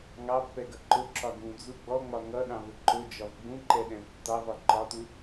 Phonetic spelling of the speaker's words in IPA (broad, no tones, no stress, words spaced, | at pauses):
ŋɑpːɛɡʌ ǃʊǁɒ ɡũd͡zu ɡ͡bɔŋ͡mɒ ŋʌɗɑ̃vʊ ǃʊd͡ʒɒv ɡ͡bũǃɛɗɛ̃v tːɑvɒ ǃɒtu